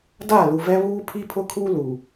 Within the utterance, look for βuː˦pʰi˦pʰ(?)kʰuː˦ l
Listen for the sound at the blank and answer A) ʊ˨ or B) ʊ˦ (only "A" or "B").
B